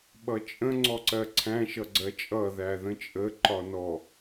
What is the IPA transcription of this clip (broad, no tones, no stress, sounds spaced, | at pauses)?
ɓ ʌ t͡ʃʼ ə̃ ŋ͡ǀ ɔ ǀ ɜ ǀʰ æ̃ ʃ ʌ ɡ͡ǀ ɜ t͡ʃʼ ʌ ð æ ð ə̃ t͡ʃʼ ə ǃ ɒ n ɔ